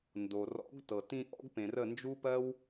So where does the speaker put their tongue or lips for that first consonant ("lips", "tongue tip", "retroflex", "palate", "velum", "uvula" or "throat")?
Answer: tongue tip